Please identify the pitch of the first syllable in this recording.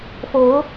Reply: rising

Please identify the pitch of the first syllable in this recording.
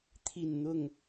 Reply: falling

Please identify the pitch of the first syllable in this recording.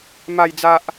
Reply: low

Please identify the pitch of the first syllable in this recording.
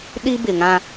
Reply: high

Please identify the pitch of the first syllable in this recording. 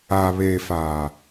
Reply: low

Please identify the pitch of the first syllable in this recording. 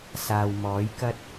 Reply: low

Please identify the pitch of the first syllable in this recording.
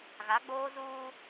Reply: rising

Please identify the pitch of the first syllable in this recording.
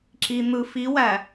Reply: low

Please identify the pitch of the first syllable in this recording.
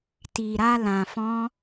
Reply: low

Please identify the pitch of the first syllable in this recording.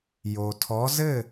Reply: low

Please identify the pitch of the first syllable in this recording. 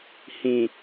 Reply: low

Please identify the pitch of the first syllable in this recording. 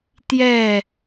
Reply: falling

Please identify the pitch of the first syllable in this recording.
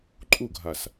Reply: falling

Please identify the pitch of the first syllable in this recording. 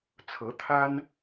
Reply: rising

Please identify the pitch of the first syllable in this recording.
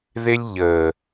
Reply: high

